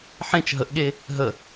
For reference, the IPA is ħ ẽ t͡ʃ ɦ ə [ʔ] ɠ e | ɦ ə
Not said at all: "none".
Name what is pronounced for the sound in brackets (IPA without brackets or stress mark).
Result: ʔ